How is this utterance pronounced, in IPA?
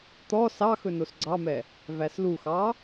t̪ ɔ s ɑ x ɵ n o s ɡ͡ǀ ɑ m ɛ | v æ s l u x ɑ

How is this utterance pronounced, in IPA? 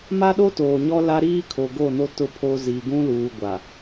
m a˦ ɗ o˦ t oː˨ ɲ ɔ˦ l a˦ ɾ iː˦ kʰ o˨ ɡ o˦˨ n o˦ t ʊ˦ pʰ o˦ z i˨ ɡ ũ˦ l uː˨ ɡʷ a˨

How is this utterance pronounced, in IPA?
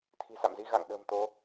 t̪ʰ i̤˨˩ s a̰˧˨ m z i˧ ɣ a̰˧˨ ŋ ɗ ə̤ː˨˩ m t̪ o˨˦

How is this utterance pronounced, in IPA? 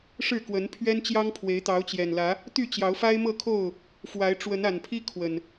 ʂ ɻ̩˥˨ k w ə˨˦ n pʰ ɥ ɛ˦ n t͡ɕ j ɑ˦ ŋ pʰ w e˨˦ ɪ̯ t̪ ɑ˨˦ ʊ̯ t͡ɕ j ɛ˨˩ n l ä˨˦ | t̪ y˥˨ t͡ɕ j ɑ˨˦ ʊ̯ f a˦ ɪ̯ m ɤ˥˨ kʰ o˥˨ ʊ̯ | f w a˨˦ ɪ̯ ʈ͡ʂ w ə˨˦ n a˨˩ n pʰ i˦ kʰ w ə˨˩ n

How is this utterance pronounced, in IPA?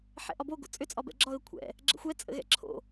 ħ ɛ̰ ʔ ɒ b o ɡ o̰ t͡sʼ ʏ t͡sʼ ɒ b ɛ̰ ɡ͡ǁ ɒ ɣ ə kʷʰ ɛ̰ | ɡ͡ǁ ə̰ xʷ ɛ t͡sʼ ə̰ ɣ ɛ̰ ǁʰ o̰

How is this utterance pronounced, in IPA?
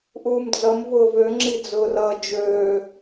ʔ uː m d͡z ʌ m v ʊː v ø ŋ͡ǁ i d͡z ʊː r ʌː d͡ʒ øː

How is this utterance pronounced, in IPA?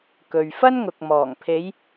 k ɵ˨ ɥ f ɐ˥ n ŋ ʊ˨ k̚ m ɔː˨˩ ŋ pʰ e˨˧ j

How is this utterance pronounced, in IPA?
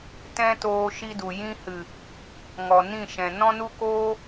t ɛ̃˦ t oː˧ ʃ i˦ d u˨ j ĩ˦ h ɨ˨ | ŋ ɔ˨ n ĩ˦˨ ʃ ɛ̃˨ n ɔ̃˦ n u˦ k oː˦

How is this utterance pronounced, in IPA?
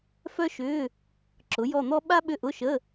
f œ˥ ʃ ʏː˧˥˧ | ǁ ʊ˩˥ j ɔ˦˨ n̪ ɔ˥ ɓ a˥ ɓ ʏ˦˨ ʔ ʊ˧˥˧ ʃ ə˧˥˧

